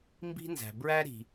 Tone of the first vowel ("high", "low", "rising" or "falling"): high